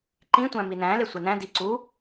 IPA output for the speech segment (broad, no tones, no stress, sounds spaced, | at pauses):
ǃ ĩ tʷ æ̃ m i n æ̃ l e sʷ e n æ̃ d i ǀ u